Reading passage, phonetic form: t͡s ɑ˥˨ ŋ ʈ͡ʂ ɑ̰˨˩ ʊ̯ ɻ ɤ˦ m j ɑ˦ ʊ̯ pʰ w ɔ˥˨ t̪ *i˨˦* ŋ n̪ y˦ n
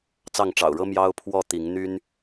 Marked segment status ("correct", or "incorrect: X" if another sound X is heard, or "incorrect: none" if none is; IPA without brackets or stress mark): correct